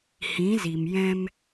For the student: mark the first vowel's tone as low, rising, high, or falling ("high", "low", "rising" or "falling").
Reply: rising